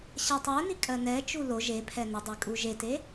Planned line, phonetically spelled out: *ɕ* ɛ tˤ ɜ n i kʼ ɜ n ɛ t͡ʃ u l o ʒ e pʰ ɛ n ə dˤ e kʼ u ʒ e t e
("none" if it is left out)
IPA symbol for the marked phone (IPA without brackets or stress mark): ɕ